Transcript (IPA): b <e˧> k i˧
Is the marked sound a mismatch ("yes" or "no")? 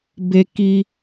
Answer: no